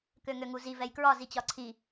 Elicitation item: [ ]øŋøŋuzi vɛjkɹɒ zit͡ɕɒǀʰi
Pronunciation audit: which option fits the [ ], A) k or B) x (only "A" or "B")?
A